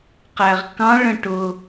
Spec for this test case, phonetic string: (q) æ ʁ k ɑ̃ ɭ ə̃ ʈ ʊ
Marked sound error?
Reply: no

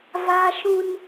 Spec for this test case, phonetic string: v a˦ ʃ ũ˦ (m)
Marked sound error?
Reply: yes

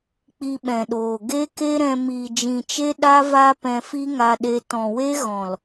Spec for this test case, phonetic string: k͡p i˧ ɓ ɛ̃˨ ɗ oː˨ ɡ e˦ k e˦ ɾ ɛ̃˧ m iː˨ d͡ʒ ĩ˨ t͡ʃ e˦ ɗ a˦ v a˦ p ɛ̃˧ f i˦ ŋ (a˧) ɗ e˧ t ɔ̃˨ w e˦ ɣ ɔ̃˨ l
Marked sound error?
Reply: no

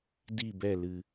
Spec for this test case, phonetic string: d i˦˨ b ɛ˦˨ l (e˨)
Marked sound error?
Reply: yes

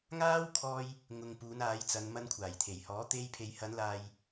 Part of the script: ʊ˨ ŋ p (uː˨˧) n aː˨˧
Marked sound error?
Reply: no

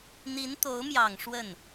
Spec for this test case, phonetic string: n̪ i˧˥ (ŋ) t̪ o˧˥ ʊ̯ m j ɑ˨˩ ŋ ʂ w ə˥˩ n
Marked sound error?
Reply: yes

